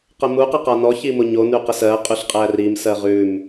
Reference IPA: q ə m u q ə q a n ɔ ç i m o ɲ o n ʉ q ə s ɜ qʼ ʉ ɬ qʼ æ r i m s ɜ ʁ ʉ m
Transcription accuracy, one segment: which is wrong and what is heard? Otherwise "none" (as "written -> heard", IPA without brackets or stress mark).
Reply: none